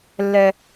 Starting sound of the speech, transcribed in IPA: lː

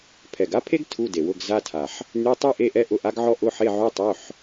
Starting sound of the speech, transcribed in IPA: pʰ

